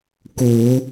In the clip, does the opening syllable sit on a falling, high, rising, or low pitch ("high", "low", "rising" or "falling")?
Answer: low